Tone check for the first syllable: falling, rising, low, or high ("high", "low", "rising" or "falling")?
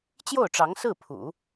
falling